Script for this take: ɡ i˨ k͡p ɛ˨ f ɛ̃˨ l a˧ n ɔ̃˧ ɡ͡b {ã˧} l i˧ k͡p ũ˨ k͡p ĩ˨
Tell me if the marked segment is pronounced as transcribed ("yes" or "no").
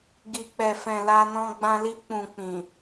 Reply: yes